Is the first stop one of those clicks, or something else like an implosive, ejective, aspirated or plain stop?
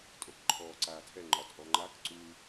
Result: ejective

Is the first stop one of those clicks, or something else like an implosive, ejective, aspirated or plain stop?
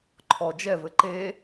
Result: click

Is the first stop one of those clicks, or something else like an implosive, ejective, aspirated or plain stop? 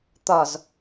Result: plain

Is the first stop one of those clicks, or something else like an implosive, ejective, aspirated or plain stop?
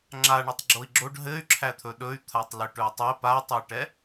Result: click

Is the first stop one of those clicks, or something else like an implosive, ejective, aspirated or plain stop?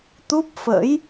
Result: plain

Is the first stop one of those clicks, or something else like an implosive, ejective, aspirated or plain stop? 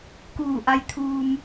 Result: plain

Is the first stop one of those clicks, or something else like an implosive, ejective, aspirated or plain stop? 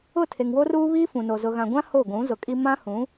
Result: aspirated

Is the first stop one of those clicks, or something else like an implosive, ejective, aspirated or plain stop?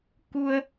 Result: plain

